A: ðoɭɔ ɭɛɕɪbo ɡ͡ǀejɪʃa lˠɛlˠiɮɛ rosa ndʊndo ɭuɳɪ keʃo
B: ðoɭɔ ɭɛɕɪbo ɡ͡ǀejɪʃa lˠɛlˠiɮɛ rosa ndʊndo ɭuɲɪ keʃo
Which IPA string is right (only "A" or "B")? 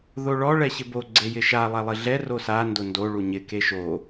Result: B